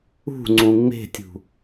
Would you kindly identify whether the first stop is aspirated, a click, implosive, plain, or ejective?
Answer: click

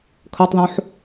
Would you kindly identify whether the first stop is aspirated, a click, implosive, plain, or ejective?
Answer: aspirated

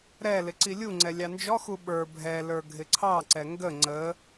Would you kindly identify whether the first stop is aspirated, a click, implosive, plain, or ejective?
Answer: click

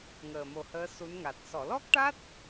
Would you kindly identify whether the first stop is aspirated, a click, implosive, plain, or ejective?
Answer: plain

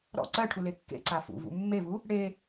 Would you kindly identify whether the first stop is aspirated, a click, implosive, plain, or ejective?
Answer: click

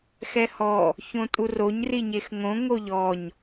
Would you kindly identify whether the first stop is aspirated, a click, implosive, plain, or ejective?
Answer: ejective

